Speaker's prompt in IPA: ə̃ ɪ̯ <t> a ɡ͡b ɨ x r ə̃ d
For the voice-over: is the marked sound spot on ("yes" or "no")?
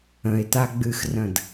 yes